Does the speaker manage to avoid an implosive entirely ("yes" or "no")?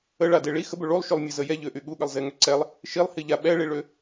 no